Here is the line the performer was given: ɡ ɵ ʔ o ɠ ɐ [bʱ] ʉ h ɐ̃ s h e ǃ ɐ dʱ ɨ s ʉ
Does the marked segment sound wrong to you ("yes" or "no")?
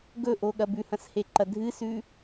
yes